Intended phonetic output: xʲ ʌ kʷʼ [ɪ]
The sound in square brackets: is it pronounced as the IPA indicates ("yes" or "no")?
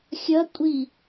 no